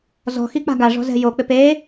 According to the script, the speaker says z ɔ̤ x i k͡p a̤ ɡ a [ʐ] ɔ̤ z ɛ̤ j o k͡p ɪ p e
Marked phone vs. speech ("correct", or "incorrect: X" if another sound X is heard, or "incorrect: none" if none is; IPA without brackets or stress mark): correct